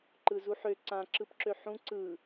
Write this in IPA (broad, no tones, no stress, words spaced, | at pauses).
ǃɯzuħø ǀã ǁɯpǁøħũ ǀɯ